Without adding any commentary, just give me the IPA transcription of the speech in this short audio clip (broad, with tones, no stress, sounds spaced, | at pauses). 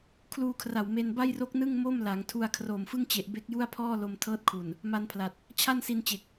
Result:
kʰ l uː˧ kʰ r a˨˩ w m e˧ n b a˥˩ j r o˦˥ k̚ n ɯ˥˩ ŋ m o˥˩ m l a˩˦ ŋ tʰ u˧ a̯ kʰ r oː˨˩ m f ɯ˥˩ ŋ t͡ɕ e˨˩ ʔ b e˦˥ k̚ j u˥˩ a̯ pʰ ɔː˥˩ l o˧ m tʰ ɤː˦˥ t̚ kʰ u˨˩ n | m a˧ n pʰ l a˨˩ t̚ | t͡ɕʰ a˥˩ n s i˧ n t͡ɕ e˨˩ k̚